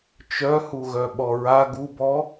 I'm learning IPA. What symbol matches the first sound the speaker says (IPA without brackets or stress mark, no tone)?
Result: t͡ʃ